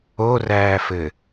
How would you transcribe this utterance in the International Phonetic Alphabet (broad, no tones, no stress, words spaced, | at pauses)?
oræːfɘ